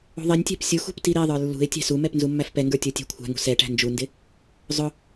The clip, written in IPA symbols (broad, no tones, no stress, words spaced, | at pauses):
ṳðˤinʲtʲæ̤p sʲuxṳp tiɾiðˤə˞ lːṳɪ̯ tʲæ̤sumɛp nzumːæfpɛŋɡə˞ tʲə˞tʲæ̤kʷʰæ̤ŋṳ sɛʈæ̤ nd͡ʒundɪ | zˤʊ